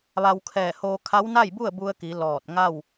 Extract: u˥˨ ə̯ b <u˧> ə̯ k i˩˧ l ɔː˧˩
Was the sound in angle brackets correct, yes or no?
yes